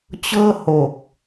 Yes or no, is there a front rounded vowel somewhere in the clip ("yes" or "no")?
no